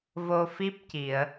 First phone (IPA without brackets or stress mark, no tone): v